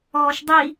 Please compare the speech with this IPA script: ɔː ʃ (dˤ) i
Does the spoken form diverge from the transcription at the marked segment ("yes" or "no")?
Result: no